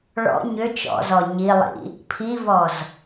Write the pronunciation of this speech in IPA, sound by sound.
ɭ ɔ̰ ɲ ʏ t͡ʃ ɔ̰ z ɔ ɲ i lˠ ḭ | pʰ i v ɔ z

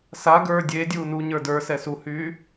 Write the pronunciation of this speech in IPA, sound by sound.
s a ɡ ə˞ dʲ e dʲ uː n u ɲ ə˞ d ə˞ s ɛ s u h yː

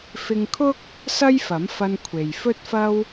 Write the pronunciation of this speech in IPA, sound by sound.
f ɪ˧ ŋ kʰ ʊ˥ k̚ | s ɐ˥ j f ɐ˨˥ m f ɐ˧ n kʷʰ e˨ j f ɵ˥ t̚ f ɐ˥ w

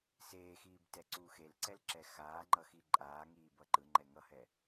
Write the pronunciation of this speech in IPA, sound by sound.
s eː x iː b t ɛ ǀ uː x e l ǀ ɛ l ǁ ɛ x aː ŋ͡ǃ ʌ x i ǃʼ aː ŋ iː b ʌ ǃ ɯ ŋ͡ǃ ɛ ŋ ʌ h ɛ

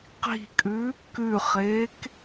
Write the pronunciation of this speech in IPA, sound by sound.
q i̤ kʼ ʉ | k ʉ χ eː k

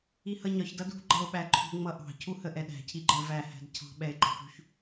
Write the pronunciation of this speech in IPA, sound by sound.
i h ʌ ɲ ɒ ç d ʌ d ṳ ɡ͡ǃ ʌ o̯ ɓ æ ǃʰ ṳ ŋ͡m ʌ ʔ ɑ̤ cʰ u h ə ʔ ɛ ɗ æ̤ cʰ i ɡ͡ǃ ɜ v æ h æ̤ d cʰ ɑ̤ ɓ ɛ e̯ ɡ͡ǃ ɑ p ṳ ç

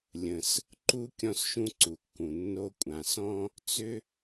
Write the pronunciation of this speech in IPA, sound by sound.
lʲ ə̃˩ s | ǃ u˥ kʲ ɔ̃˥ s ʃ ũ˥ ǀ u˩ kː ũ˩ nː o˥ kʷʼ ã˩ s ɔ̃˥ | t͡s ʏ˥

